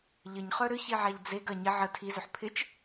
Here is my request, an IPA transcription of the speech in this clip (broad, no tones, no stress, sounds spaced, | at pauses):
ʎ ə ɲ χ œ ɾ ʏ ç i ʕ a ʎ d͡z e ɡ ɐ ɲ ɪ ʕ ə tʰ i z ʏ ħ pʰ ɪ t͡ʃ